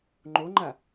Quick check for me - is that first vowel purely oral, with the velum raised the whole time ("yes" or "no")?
yes